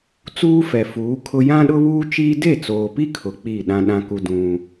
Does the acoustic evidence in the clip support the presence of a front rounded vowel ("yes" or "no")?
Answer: no